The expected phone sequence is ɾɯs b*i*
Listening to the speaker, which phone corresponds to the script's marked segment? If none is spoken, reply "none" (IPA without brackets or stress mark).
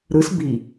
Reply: i